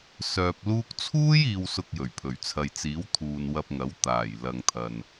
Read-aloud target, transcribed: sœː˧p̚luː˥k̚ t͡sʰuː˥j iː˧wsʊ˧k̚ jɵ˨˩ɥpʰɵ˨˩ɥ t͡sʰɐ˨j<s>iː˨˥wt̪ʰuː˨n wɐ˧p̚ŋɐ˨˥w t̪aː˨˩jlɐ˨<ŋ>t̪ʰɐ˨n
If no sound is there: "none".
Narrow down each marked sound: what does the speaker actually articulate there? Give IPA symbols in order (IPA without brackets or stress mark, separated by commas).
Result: t͡s, ŋ